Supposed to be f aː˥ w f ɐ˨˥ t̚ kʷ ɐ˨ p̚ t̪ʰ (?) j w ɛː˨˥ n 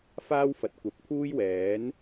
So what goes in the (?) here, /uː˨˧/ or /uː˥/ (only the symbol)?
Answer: uː˥